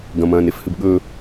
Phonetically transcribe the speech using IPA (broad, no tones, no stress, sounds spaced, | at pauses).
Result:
ɡ ɐ̃ m ɐ̃ː n e f h ɨ b ɠ ɵː